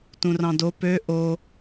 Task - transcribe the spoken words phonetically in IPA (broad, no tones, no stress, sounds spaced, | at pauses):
t ũ r ɑ̃ d o p ø ʔ o